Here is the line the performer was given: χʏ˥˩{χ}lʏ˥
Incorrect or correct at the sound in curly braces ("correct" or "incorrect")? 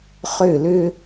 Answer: incorrect